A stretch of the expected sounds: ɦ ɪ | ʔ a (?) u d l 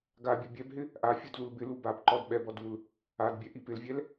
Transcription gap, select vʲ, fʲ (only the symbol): fʲ